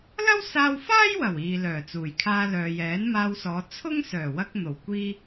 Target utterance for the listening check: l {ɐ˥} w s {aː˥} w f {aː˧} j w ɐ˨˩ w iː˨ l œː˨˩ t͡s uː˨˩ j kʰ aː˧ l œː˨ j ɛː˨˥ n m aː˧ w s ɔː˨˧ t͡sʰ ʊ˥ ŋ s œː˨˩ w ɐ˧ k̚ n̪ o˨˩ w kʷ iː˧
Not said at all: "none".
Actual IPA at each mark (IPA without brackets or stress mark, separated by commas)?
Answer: ɐ˥, aː˧, aː˥